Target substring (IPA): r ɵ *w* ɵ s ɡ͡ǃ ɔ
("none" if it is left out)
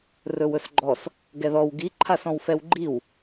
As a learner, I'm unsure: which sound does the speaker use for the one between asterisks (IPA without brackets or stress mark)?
w